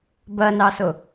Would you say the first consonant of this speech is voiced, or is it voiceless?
voiced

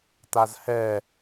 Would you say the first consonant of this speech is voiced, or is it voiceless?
voiceless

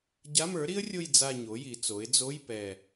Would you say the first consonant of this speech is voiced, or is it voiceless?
voiced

